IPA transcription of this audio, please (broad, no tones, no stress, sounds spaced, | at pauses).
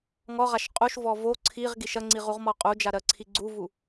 ŋ ɔ ʁ a ʃ qʼ u ʃ v ɔ v o ǀʰ i ʁ ɡ i ʃ ɐ ŋ͡ǀ i ʁ u ʁ m ɔ qʼ u d͡ʒ a ɾ ɜ ǀʰ i ɡ͡ǀ u v u